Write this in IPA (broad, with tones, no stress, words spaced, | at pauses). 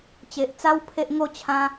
t͡ɕe˨ʔt͡sa˧w pʰe˦ʔŋo˥˧ t͡ɕʰã˧